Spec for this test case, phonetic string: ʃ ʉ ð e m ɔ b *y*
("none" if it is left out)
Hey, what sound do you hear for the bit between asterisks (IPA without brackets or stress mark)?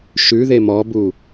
u